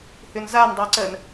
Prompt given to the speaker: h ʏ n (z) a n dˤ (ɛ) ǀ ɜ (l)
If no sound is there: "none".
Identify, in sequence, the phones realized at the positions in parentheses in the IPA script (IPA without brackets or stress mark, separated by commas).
z, ɛ, n